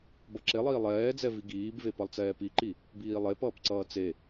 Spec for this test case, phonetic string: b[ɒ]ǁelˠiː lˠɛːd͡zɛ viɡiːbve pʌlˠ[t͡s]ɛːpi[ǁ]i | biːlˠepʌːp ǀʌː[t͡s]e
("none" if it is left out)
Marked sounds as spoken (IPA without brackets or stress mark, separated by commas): ʌ, t͡s, ǃ, t͡s